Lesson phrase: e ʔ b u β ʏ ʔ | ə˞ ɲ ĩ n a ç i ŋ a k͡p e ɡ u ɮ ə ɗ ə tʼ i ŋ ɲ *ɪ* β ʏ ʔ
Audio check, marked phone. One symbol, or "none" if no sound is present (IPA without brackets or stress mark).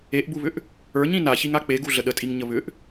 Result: ə